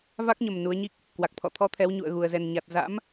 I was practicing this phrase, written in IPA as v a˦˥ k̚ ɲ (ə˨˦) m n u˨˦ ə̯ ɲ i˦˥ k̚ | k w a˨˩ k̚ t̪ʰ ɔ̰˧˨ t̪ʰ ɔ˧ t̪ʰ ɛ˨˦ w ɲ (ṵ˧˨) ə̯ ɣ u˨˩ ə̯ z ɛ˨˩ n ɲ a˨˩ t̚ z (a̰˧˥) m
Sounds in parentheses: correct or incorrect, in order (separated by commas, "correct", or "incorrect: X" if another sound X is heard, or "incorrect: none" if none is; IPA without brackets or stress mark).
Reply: incorrect: ə˨˩, correct, correct